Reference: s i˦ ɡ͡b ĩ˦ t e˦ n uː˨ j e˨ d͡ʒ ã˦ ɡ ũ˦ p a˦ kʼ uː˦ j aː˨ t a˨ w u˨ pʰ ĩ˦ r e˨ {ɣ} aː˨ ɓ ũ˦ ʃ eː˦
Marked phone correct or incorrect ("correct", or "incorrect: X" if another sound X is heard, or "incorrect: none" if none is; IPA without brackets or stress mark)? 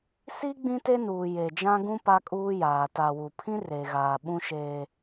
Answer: correct